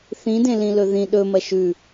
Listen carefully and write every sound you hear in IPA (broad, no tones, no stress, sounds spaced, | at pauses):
θ ĩ d ẽ l ĩ l ɵ ð ĩ ɗ ɵ m ɐ ʃ ʉ